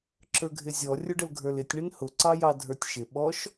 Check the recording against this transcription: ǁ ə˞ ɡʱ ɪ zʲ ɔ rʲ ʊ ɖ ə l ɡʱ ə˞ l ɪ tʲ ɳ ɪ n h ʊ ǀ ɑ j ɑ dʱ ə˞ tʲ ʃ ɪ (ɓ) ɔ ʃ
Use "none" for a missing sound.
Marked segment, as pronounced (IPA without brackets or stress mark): ɓ